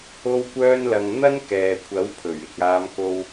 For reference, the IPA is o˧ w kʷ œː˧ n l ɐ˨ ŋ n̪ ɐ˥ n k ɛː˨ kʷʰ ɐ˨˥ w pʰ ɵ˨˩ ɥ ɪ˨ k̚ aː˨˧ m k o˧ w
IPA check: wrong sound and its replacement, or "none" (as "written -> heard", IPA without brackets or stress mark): none